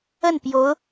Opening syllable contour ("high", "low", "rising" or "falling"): falling